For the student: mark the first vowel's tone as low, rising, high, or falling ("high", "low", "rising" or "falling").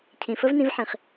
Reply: low